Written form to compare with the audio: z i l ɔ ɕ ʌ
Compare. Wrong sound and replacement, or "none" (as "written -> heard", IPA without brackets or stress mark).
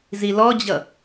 ɕ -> d͡ʑ